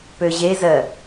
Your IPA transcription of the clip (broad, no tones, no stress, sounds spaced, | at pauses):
p ø ʑ e z ɜ